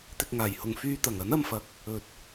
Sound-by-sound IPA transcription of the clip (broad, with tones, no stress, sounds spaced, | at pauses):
t̪ ɪ˨ k̚ ŋ aː˨˩ j h ʊ˨ ŋ f yː˧ t̪ ɐ˨˩ ŋ ɐ˨˥ n ɐ˧ m f ɐ˨˥ k̚ | ɵ˨ t̚